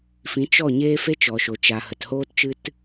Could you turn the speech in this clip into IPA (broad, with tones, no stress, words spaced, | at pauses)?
fĩ˨˦ t͡ʃɔ˦˨ ɲeː˦fe˦t͡ʃɔ˨ʃo˨ t͡ʃa˨ hə˨thoː˦tt͡ʃɨ˦t